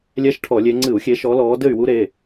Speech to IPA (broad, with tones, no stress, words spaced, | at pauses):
lʲɛ˦˥ʃʈʰɔ˧˩˧lʲe˨˦ ŋ͡ǀɨ˧˩˧u̯xʲe˨˦ʃɔ˨˦ lɔː˨˦ dɘ˥˨y̯wu˦˥ɾe˩˧˩